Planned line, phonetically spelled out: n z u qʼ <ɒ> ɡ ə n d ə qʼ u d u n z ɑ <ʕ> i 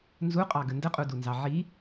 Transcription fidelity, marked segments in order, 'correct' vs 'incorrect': incorrect: ɑ, correct

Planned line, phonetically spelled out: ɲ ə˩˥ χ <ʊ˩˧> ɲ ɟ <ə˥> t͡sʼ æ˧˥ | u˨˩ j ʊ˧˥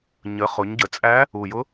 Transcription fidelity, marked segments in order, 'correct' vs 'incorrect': correct, incorrect: ə˩˧

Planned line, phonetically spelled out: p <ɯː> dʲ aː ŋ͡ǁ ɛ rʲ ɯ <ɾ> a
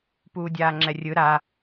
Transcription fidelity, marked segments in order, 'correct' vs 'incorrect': incorrect: uː, correct

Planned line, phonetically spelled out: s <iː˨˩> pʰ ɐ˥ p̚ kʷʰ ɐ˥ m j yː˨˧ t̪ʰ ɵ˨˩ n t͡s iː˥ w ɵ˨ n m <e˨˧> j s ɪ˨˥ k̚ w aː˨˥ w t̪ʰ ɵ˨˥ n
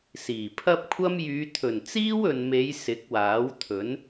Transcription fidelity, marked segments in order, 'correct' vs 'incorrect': correct, correct

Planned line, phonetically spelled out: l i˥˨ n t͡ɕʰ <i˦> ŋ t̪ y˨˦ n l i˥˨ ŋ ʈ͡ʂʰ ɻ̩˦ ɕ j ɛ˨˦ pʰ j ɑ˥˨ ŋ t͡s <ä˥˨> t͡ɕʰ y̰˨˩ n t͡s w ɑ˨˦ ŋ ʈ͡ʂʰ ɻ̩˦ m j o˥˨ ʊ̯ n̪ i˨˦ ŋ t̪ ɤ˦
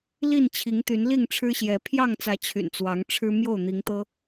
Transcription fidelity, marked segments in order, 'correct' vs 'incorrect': incorrect: i˨˦, incorrect: ä˨˦

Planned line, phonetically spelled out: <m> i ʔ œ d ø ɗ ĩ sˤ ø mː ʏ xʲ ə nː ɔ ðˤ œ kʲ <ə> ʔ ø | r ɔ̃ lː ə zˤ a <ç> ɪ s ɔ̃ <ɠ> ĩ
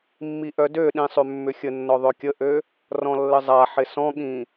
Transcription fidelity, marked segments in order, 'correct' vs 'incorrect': incorrect: mː, correct, incorrect: ħ, correct

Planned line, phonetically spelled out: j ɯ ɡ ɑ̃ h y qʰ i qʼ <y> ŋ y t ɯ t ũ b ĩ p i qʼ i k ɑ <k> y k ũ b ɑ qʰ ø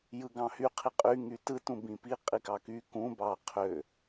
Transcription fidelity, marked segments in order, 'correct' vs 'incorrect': correct, correct

